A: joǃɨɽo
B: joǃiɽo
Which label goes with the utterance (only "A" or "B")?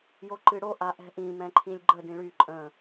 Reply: A